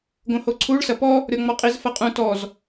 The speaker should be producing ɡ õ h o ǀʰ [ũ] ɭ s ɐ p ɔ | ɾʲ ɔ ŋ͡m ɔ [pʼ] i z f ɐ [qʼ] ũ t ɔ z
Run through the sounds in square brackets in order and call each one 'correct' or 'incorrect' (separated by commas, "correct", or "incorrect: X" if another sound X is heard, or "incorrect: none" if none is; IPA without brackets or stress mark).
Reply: incorrect: u, incorrect: qʼ, correct